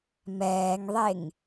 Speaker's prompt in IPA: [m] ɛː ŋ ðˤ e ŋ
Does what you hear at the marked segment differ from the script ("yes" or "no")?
no